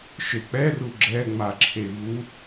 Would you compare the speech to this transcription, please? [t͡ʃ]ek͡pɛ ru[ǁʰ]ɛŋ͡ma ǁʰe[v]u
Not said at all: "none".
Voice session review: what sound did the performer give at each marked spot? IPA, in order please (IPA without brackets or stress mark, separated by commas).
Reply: ʃ, ɡ͡ǁ, v